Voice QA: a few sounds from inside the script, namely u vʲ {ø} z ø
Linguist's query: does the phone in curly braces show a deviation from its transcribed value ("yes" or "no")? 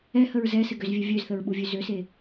yes